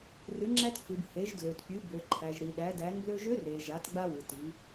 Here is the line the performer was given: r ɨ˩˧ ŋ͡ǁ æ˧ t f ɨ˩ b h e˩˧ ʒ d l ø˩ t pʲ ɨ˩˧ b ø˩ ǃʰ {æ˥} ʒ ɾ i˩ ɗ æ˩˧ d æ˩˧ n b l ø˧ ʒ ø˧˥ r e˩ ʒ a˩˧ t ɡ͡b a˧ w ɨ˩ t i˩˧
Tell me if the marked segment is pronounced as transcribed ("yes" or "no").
no